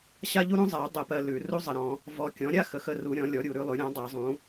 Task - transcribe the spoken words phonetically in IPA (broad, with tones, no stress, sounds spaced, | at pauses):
ɕ a˥ ʎ u˥ ɾ ũ˥ zˤ a˨˩˦ y̯ dˤ ə˨˩˦ p ɜ˨ l ʉ˨˩˦ r u˥ zˤ ə˨ ɾ ɔ̃˨˩˦ | v ɔ˨ kʲ ɔ̃˩˥ ɾʲ a˥ x ə˩˥ x ə˨ r u˨˩˦ ɾʲ ɔ̃˩˥ lʲ ɔ˩˥ ɾʲ u˨˩˦ ɾ ʉ˩˥ lˠ ʉ˩˥ ɾʲ ɔ̃˩˥ dˤ a˨˩˦ zˤ ũ˩˥